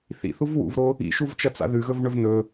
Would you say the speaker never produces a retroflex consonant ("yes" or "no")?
no